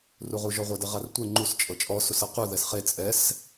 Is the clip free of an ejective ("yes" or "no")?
no